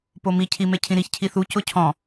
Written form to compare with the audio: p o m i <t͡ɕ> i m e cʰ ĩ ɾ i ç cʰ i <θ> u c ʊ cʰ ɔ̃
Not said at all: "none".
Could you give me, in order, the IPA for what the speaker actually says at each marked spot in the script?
cʰ, θ

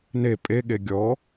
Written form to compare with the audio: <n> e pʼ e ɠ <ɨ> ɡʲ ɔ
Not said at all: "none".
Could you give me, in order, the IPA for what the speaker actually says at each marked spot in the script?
n, e

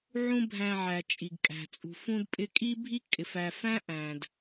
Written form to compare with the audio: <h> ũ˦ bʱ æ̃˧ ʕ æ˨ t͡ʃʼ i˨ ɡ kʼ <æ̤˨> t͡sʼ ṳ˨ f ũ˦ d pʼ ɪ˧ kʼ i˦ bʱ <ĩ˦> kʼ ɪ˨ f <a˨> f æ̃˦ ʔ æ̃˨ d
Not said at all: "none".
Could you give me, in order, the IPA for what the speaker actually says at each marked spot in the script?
ʕ, æ̤˨, i˦, æ˨

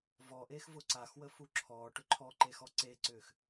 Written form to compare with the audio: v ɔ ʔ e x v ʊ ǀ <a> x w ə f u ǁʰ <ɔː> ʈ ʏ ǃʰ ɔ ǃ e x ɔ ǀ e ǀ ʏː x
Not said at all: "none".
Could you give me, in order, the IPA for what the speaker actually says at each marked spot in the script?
a, ɔː

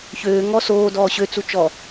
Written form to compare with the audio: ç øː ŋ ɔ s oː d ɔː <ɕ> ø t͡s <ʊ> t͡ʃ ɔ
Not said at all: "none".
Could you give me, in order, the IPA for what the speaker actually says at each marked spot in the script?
ɕ, u

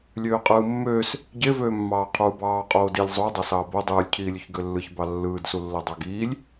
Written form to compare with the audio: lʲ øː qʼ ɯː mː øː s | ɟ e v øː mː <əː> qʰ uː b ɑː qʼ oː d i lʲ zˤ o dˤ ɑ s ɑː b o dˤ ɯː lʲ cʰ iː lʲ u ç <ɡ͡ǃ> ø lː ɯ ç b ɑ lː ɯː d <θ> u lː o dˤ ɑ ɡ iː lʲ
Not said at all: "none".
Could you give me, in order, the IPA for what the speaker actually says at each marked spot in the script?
ɑː, ɡ, s

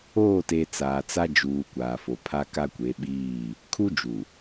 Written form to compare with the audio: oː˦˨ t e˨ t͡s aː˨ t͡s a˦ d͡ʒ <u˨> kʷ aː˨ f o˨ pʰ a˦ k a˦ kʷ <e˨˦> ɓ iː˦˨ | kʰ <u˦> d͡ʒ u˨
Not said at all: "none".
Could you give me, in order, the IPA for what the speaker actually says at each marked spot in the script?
uː˨, e˨˦, u˦

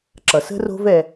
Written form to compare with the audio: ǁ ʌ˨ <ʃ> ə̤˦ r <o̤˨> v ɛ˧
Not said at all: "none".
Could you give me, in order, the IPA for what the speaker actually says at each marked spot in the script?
s, o̤˦

